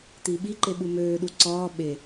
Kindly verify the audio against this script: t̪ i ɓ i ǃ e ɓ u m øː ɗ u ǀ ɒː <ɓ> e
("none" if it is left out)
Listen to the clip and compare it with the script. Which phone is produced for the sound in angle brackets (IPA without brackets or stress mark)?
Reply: ɓ